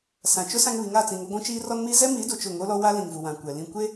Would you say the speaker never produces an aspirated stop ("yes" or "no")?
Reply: yes